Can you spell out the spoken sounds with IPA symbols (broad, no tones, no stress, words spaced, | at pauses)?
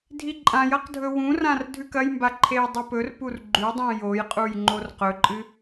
dʱiǃʼãjɐq dʱɵwũrãr dʱʉkɐjmba ǃʰejdˤɵpɵrpur ɡ͡ǃʉdˤũ jojqʼuj ŋ͡ǃorqɵǃʼɨ